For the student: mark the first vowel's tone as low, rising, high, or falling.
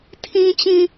low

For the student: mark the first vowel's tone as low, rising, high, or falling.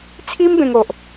high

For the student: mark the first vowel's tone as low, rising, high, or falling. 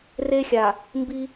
high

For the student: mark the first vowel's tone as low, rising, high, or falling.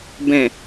low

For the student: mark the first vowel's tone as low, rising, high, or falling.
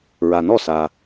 low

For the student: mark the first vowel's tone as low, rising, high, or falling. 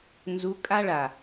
rising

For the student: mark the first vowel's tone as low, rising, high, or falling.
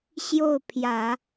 falling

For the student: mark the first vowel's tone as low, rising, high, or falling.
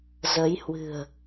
rising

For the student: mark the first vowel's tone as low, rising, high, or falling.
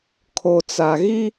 low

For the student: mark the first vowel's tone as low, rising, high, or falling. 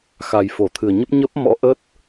low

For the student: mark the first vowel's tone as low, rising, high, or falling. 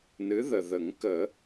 rising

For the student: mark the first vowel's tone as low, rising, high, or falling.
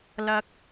low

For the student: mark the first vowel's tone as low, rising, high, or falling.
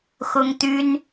high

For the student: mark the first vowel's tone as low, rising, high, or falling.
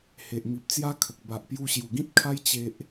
low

